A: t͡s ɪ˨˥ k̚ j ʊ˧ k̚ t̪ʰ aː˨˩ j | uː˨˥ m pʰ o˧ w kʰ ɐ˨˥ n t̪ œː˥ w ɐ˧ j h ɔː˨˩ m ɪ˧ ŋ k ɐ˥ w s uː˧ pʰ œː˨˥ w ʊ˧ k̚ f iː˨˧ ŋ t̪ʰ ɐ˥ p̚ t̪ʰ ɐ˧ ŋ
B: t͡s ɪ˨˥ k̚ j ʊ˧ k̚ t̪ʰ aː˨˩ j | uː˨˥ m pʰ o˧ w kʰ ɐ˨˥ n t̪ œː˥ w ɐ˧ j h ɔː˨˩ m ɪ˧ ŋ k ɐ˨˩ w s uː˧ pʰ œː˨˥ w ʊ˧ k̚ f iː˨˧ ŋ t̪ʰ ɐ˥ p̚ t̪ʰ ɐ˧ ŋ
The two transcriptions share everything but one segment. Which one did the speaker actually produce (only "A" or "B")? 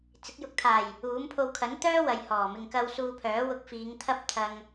A